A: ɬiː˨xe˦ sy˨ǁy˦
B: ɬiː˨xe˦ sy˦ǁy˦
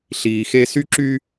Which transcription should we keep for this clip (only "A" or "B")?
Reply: B